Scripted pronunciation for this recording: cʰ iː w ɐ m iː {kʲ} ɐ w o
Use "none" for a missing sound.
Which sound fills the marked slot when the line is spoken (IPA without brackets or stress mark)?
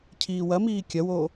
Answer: kʲ